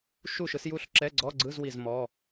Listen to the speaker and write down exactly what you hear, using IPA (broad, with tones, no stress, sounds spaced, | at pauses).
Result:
ʃ u˥˨ ʃ ɯ˨˦ s j u˥˨ ɬ ǁ ɛ˧˥˧ ɡ͡ǀ ɔ˧˥˧ ɡ͡ǀ ɯ˧˥˧ z w i˥˨ z m ɔ˧˥˧